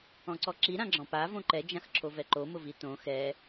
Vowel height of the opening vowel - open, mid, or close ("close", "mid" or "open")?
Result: mid